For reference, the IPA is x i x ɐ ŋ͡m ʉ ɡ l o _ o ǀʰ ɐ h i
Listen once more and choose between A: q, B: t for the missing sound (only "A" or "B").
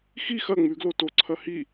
B